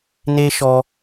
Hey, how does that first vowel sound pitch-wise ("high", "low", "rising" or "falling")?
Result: high